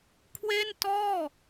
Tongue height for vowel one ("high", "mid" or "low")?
mid